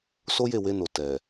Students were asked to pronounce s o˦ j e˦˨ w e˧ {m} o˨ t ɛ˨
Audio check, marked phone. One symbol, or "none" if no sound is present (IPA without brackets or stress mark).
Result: n